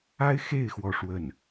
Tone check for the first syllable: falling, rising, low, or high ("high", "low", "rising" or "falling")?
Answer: high